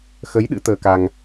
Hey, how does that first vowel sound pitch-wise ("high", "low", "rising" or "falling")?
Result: rising